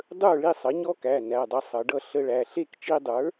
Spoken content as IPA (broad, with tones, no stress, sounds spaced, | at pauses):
dˤ ə˞˥˩ ɭ i˥˩ sˤ ʌ˩˥ ɲ ɔ˦˥ k æ˩˧˩ n æ˩˧˩ dˤ ʌ˧ sˤ ʌ˩˧ ɖ ʌ˥˩ ɬ ə˧ ɭ æ˩˧˩ ɬ e˥˩ k t͡ʃ i˧ dˤ ə˞˩˥